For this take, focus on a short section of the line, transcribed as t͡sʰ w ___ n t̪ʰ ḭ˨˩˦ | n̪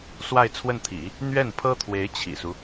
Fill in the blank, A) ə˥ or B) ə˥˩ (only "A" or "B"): B